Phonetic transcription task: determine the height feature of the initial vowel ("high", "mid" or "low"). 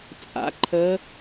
low